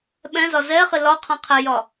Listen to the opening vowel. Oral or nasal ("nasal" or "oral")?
nasal